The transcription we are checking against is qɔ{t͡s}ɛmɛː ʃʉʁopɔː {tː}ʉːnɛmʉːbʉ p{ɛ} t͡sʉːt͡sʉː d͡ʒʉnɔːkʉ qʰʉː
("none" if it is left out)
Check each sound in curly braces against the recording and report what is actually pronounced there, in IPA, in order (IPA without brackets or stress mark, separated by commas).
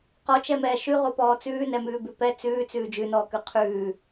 t͡ʃ, t͡s, ɛ